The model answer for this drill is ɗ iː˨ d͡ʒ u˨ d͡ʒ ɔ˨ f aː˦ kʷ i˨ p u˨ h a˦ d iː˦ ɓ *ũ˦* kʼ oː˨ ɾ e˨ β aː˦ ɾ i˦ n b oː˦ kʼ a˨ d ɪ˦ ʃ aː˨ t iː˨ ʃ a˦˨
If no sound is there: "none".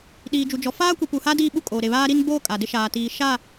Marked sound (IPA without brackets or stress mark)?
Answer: u˦